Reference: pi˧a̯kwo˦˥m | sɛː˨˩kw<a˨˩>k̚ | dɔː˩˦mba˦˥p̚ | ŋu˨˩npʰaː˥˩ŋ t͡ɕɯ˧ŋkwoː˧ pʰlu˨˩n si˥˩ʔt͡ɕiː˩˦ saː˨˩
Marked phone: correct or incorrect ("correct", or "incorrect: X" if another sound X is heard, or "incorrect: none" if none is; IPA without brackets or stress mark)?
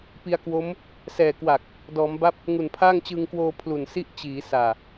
correct